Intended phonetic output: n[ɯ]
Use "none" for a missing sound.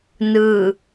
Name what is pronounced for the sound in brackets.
ɯ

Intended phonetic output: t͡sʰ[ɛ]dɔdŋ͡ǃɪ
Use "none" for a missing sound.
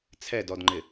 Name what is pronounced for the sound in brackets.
ɛ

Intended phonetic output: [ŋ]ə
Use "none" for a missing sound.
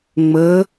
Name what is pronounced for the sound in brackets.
ŋ͡m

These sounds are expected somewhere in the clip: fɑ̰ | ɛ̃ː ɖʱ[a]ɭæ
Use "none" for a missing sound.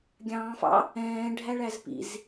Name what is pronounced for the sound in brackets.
æ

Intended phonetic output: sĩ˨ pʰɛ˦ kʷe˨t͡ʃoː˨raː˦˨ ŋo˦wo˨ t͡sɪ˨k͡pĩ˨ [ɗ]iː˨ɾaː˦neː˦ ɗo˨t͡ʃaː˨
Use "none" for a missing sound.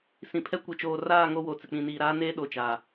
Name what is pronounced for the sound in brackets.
n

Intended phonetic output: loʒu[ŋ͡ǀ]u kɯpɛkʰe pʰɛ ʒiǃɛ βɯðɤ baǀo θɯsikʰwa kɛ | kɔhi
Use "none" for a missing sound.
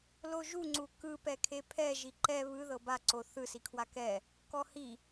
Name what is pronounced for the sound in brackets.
ŋ͡ǀ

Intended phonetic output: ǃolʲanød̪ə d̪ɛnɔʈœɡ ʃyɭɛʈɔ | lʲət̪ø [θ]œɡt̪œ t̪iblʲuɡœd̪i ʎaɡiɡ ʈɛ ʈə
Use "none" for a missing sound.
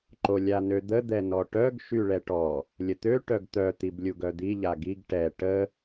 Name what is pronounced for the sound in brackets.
ʈ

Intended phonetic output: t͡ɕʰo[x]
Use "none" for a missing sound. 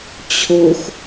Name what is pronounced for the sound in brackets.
x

